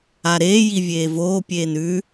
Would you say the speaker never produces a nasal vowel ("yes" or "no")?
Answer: yes